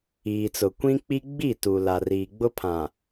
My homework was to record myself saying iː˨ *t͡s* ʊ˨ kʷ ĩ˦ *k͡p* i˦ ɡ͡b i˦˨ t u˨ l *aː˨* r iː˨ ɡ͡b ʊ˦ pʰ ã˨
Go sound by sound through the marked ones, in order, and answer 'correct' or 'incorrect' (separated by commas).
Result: correct, correct, incorrect